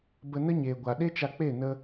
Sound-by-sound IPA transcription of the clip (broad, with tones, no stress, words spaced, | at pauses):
bə˧nə˦ɲeː˨ɡʷa˨ ɗe˦t͡ʃa˧k͡pe˦˨ nə˧